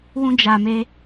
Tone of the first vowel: high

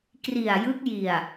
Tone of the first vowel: low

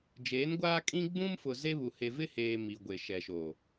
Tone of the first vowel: rising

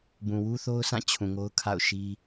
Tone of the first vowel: low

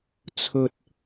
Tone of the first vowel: low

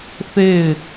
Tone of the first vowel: falling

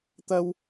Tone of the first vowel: high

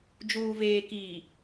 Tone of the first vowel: low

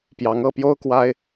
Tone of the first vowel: rising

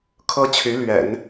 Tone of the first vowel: high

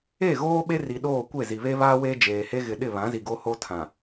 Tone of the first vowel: falling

